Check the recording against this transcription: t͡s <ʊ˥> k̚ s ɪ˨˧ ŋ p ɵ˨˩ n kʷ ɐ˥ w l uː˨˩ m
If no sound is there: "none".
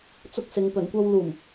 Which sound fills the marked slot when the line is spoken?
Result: ʊ˥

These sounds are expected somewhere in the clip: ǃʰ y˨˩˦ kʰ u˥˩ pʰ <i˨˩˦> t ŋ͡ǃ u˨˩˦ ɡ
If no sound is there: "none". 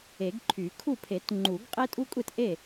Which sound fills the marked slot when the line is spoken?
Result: e˨˩˦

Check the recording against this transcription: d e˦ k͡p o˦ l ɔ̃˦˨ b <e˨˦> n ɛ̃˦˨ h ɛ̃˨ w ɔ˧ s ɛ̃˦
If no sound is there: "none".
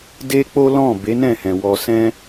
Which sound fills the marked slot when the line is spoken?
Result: e˨˦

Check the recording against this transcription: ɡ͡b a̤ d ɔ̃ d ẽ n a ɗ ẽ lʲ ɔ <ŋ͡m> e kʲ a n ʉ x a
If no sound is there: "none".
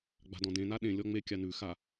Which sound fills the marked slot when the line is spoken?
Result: ŋ͡m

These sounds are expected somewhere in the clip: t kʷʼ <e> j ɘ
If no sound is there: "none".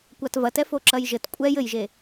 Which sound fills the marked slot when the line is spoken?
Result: ɛ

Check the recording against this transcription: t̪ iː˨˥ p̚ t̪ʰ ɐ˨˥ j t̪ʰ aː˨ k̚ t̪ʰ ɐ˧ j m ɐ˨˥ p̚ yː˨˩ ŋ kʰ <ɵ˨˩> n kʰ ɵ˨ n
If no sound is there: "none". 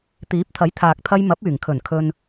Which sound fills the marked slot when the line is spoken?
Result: ɵ˨˩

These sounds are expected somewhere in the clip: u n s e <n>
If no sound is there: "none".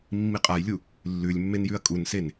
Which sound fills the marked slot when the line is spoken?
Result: n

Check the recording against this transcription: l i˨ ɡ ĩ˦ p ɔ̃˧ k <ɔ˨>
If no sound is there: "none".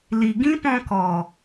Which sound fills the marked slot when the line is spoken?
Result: ɔ˨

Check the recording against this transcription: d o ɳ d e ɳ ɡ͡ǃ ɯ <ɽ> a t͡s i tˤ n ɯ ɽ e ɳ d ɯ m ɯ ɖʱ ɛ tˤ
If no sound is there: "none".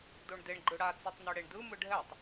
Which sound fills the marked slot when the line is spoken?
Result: ɽ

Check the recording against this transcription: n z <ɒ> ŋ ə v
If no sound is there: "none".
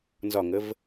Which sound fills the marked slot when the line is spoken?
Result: ɒ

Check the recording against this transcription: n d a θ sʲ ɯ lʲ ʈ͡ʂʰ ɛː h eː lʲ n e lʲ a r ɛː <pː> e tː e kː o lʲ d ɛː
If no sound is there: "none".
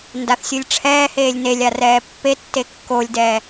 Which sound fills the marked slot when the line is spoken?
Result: pː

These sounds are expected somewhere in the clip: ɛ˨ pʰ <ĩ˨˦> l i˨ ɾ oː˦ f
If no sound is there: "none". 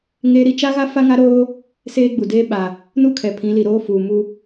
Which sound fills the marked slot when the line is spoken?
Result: ĩ˨˦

